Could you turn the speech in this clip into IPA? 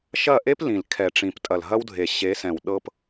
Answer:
ʃɐ˦˨ʔe˦p lĩ˨l kʰɛ˨ʈ͡ʂĩ˨p tʼɐ˨lɦɐ˦wdʱe˨ ɕe˨˦sɛ̃˨w ɗɤ˧p

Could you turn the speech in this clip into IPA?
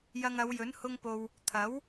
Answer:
jɐ˧ŋɐ˨˧wjɵ˨˥n hʊ˧ŋpo˨w | t̪ʰɐ˨˥w

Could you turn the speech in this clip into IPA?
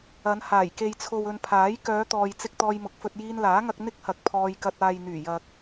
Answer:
ɐ˨˧n haː˨˩jke˨jt͡sʰo˨wɵ˨n pʰaː˨˥j kœː˨˧t̪ɔː˨jt͡sɪ˧k̚ t̪ɔː˧jmʊ˨˥k̚fɵ˧t̚ jiː˧nlaː˨˥ŋɐ˧k̚ n̪ɪ˥k̚hɐ˨˥k̚ pʰɔː˧jkɐ˧t̚ aː˨jn̪yː˨˩ jɐ˨k̚

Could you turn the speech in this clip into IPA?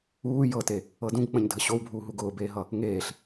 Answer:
uː jɤte | ɤdũɡk͡pə̃ɲ dʱəɕowbʱuːɦu ɡʊːbeːɦʌ | ŋeːɬ

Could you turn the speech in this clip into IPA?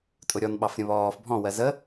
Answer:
tʼʊɾʲɔnɓɑfɾʲə̃ βɔːf bʱɔ̃wɜ zə

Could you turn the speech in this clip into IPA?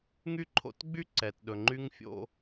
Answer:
ŋy˥ǃʰo̰˧tɡ͡by˥ ǀɛ˩tɗɵ˩ŋ͡ǃy˧ŋ fʲo̰˧

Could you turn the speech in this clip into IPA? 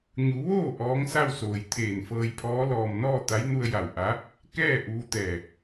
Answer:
ɲu˩˧ʋoː˥˨ ʔɔː˧˥ŋsa˥˨wsoː˩j t̪ʰeː˧˩nfɤː˧jpʰɔː˧˥ lɔː˩mnɔː˥˨ t̪a˧˥jnu˧ə̯ ja˧˩w ʔa˧˥ | kɛː˥˨ ʔuː˧t̪ɛː˧˩

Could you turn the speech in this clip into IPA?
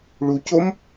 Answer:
ɭucom

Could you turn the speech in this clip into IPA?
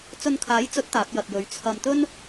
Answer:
t͡sɵ˧nkʰaː˨˥jt͡sɵ˨˥t̚ t̪aː˨˥p̚jɐ˨t̚jɵ˨˧ɥ t͡sʰɐ˧m t̪ɵ˥n

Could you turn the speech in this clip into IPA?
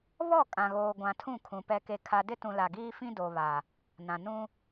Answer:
βɔ˦˨ kʼã˨ɣoː˨ɡʷã˨ tʰũ˦˨kʰũ˨ pɛ˨ke˨ kʰa˨dɪ˦tũ˨ la˨ɡiː˦fĩ˦ do˨βa˨ | nã˨ nũ˦

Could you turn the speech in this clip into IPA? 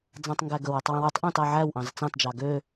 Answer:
d͡zɑ̃tˤŋɡæɡɵwøtˤ wĩwutˤʔõt ɑʕæwʔɑ̃z t͡sɑ̃td͡ʒɑ ɡø

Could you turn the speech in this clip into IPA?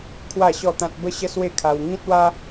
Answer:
kʰwa˥˧ɕɔ˥˧t̪ã˦t̚ bə˦ɕə˦ swe˥˧kʰa˧w ŋĩ˦t̚wa˦

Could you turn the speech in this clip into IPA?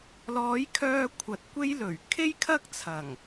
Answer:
lɔː˨˥jkʰœː˧ kʷʰɐ˨˥t̚kʷe˥jlɵ˨˩ɥ kʰe˥jkʰɐ˥k̚t͡sʰɐ˨˩ŋ

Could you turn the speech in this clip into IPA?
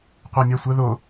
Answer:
qʷɜmʲasʷɜðo

